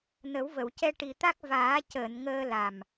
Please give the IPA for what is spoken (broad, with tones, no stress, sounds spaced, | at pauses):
n ə˨˩˦ w v ə˨˩˨ w c ɛ˧ ʈ i˨˩ t̪ a˦˥ k̚ v aː˨˩˦ c əː˨˩˨ n ŋ əː˧ l a˨˩ m